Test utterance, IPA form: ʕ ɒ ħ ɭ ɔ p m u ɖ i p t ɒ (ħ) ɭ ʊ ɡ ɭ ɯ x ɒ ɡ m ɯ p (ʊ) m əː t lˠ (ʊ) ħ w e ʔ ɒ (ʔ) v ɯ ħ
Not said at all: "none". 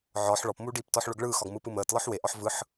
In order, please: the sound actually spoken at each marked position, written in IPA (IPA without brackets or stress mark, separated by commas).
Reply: ħ, ɯ, ɯ, ħ